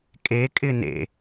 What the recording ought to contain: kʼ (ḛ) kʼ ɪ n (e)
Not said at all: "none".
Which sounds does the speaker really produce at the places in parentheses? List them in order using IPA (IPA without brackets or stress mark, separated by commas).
e, ḛ